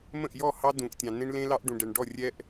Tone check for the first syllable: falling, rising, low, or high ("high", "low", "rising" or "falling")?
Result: falling